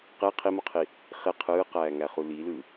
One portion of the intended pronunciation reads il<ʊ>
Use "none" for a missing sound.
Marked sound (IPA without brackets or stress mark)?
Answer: ɯ